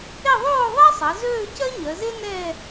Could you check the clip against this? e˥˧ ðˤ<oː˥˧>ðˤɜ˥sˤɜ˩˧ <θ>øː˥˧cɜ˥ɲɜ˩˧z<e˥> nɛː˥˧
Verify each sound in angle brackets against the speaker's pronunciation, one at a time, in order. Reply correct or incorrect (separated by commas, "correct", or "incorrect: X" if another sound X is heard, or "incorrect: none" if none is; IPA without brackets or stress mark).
correct, incorrect: z, correct